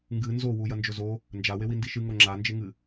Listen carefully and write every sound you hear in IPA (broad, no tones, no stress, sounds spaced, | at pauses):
ŋ ɡ ɨ n z o w u j ɐ n d͡ʒ ɵ z o | n d͡ʒ a w e w i n d i ʃ ɨ ŋ o ŋ͡ǁ a n d͡ʒ e ŋ ɨ